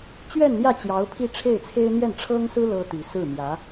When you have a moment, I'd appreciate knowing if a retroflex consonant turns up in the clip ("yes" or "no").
yes